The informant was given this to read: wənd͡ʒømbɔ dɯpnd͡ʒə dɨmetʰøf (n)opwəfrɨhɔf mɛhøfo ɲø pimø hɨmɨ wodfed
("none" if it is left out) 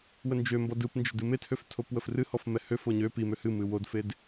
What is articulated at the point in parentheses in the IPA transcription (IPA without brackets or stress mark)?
tʰ